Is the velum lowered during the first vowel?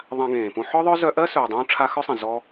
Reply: yes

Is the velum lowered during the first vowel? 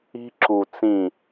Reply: no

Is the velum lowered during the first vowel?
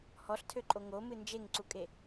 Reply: no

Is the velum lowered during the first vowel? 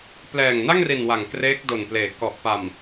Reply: no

